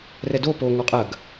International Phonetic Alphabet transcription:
rɛdo po ŋɔqʼɐɡ

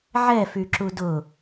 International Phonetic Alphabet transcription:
ʕɛfyǁu dʊ

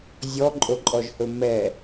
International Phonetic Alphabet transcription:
zʲɔǃʼoǃʼɔʒhɵ mɛ

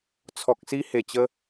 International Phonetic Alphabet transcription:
t͡sʰɔ˨k̚si˧he˨˩ t͡ɕə˦

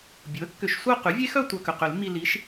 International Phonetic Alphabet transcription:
bʲu˩˥ə̯kːʏ˨˩˦ʃsʷœ˥˧ qy˩˥vʲe˦˥xœ˥˧ tʷœ˧kʏ˩qʏ˨˩˦lmːi˧ li˩˥ʃ

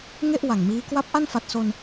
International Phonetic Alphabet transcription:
ŋe˥˩ʔ wa˨˩ŋmiː˦˥ kwa˦˥p̚ ʔa˥˩nfa˨˩t̚so˧n

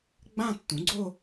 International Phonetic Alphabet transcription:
ɡ͡bã˥˧tːũ˩˥ɡ͡ǀo˥˧

